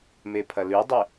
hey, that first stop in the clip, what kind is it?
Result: aspirated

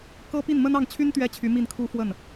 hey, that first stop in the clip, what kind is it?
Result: plain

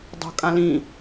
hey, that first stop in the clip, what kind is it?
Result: plain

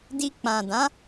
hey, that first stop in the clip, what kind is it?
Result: plain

